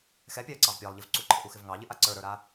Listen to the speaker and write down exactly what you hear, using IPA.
x ɛ pʲ ɑ ə̯ ǀ ɑ v pʲ ɑ lˠ ʎ ɪ v ǀ u ǃʰ ɪ ʔ u x ɪ v ŋ ɑ ʎ ɪ ʔ a ǀ ə˞ ɾ ə˞ ɾ a

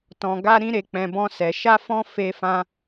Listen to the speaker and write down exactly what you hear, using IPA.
t ɔ̃˨ ɡ a˧ ɾ ĩ˧ ɾ e˨ k͡p ɛ̃˨ b ɔ̃˧ s ɛ˨ ʃ a˧ f ɔ̃˧ f e˧ f ã˧

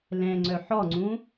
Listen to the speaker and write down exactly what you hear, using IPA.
l ɛ̃ ŋ͡ǀ œ ħ ɔ ŋ͡ǀ ũ

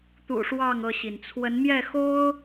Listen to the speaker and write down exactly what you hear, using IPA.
t̪ ṵ˨˩ ʂ w ɑ˥˨ ŋ ɤ˥˨ ɕ i˩ n t͡sʰ w ə˨˦ n m j ɛ˥˨ x o˦ ʊ̯

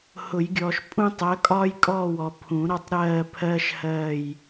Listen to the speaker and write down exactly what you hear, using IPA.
h ʊ˨˩˦ j ɡʲ ɔː˨ ʃ pʼ ũ˦ tˤ ɜ˨˥ kʼ ɒː˦ j kʼ ɔː˦˨ w ɔ˨ pʰ ũ˨˩˦ ɾ ɒ˦ tˤ ɾ ɜː˦˨ pʰ ɜː˦ ʃ h ɜː˦˨ j

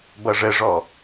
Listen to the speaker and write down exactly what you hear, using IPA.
b ʌ ʐ ə ʐ ɔ

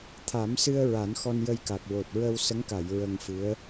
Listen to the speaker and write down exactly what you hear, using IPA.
t̪ʰ a˨˩˦ m s ɨ˧ ə̯ ɹ a˨˩˦ n x ɔ˧ n j ə˧ j k a˨˩ k̚ w o˨˩ t̚ ɹ ə˧ w s ə˧˥ ŋ k a˨˩˨ j ɹ ə˧ ŋ f ɨ˧˥ ə̯

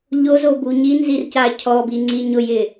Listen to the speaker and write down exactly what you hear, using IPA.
ʎ o z o b u ɲ i n z i r c a cʰ ɔ b i ŋ͡ǀ i ɲ ʊ j ɪ

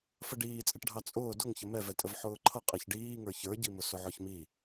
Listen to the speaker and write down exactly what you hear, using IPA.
f ə ɖ iː t͡sʼ ɪ ʈ ɖʱ ɑ t͡sʼ ʊː d ʊ ŋ ç ə m ɛ v ɛ tʼ ə v ħ ʊː ǃʰ ʌ qʼ ɛ ç ɖ iː ŋ ə˞ ç ə˞ ɟ i m ʊ s ʊ ʕ ɔ ç m i

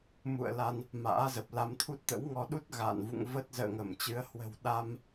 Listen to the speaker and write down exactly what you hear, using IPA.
m ṵ˧˨ ə̯ l a˧ n | m a̰ː˧˥ z ə˨˩ p̚ l a˨˦ m t̪ʰ u˦˥ t̚ t̪ ə̰˧˥ w ŋ ɔ˧ ɗ u˦˥ t̚ ɣ a̰ː˧˨ n v ṵ˧˨ ŋ v ə˦˥ t̚ z ə̰ː˧˨ ŋ ə˧˩ m t͡ɕ ɨ˨˦ ə̯ h w ə̤˨˩ w ɗ a˧ m

